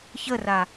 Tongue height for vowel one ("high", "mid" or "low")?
mid